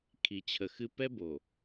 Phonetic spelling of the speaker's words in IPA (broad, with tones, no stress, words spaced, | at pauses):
kʰi˨t͡ɕʰə˨xɨ˦ pɛ˦bo˨